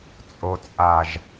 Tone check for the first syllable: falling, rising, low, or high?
low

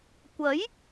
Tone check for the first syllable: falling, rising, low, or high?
rising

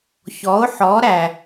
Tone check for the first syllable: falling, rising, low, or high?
rising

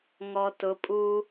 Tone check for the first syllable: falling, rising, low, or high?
low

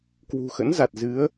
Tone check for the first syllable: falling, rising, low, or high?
low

